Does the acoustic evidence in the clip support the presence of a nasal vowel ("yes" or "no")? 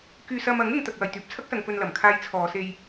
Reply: no